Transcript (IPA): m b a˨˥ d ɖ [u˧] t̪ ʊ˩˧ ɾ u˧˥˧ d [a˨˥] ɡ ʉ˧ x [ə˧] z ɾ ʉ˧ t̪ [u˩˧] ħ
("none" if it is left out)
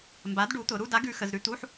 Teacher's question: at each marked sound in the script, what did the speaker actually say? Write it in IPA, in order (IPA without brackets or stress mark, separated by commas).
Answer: u˨˥, a˨˥, ə˧, u˧˥˧